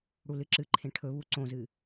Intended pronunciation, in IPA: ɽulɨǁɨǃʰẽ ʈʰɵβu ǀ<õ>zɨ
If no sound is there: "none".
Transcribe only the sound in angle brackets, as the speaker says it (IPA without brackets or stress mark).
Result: õ